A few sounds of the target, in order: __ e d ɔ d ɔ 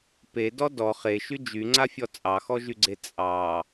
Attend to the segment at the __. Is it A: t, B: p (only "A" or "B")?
B